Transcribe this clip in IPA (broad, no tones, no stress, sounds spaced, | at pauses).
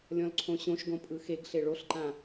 lʲ ɔ̃ l ǀʰ õ ɕ õ ʃ ɡ õ pʼ ɯ x e ɡ ɬ e ɭ o ɬ ǃ ã